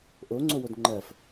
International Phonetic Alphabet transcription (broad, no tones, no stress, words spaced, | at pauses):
ʔo ŋ͡ǀowodŋ͡ǃɜf